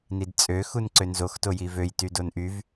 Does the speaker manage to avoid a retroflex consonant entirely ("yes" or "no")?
yes